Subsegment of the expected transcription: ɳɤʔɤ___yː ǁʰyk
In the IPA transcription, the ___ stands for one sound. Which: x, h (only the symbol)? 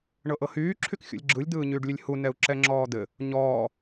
h